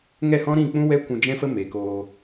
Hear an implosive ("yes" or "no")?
no